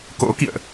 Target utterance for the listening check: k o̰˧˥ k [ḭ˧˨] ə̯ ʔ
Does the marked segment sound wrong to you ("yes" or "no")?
no